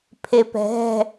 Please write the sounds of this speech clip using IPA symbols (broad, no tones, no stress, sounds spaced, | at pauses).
pʰ e p ɛ̤ ɦ ɛ̤